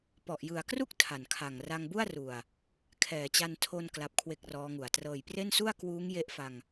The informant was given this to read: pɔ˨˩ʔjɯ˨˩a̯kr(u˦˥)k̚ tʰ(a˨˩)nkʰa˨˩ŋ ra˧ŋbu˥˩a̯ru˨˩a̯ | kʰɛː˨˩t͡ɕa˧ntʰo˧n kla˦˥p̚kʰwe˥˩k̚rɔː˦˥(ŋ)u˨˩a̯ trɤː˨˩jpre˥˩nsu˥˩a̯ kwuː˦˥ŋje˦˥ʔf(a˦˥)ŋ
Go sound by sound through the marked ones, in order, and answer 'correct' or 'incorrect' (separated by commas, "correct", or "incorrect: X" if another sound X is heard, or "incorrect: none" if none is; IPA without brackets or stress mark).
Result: incorrect: u˥˩, correct, correct, incorrect: a˧